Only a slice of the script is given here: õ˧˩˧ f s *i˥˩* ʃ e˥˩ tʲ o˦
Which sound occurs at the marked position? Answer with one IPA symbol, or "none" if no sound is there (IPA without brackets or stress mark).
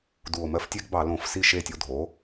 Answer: i˥˩